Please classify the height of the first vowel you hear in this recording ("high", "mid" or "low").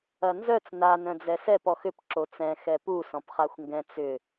low